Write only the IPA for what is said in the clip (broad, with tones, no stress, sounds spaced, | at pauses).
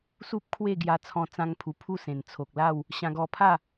s u˦ p̚ kʰ w e˥˧ ɡ j a˧ t͡sʰ ɔ̃˧ t͡s ã˧ ŋ pʰ u˨˩ pʰ u˥˧ s ẽ˨˩ n t͡sʰ o˨ k̚ l a˥˧ w | ɕ ã˧ ɡ ɔ˧ pʰ a˥˧